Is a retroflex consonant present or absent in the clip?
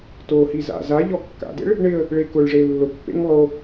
present